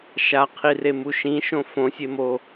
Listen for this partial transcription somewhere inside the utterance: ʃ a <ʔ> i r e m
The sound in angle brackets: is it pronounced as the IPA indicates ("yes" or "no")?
no